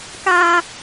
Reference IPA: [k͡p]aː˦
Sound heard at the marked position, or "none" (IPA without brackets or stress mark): k